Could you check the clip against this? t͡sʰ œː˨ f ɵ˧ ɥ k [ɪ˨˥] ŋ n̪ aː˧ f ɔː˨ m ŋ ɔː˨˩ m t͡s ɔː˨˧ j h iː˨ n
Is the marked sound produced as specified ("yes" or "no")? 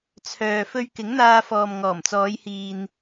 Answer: yes